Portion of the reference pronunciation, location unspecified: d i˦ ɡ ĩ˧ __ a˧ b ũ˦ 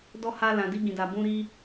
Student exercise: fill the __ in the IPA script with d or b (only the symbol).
d